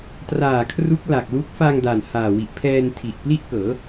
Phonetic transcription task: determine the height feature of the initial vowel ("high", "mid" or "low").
low